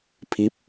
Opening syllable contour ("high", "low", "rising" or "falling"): rising